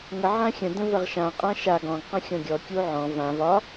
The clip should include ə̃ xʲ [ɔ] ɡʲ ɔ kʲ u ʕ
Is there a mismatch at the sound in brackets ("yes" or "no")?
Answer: yes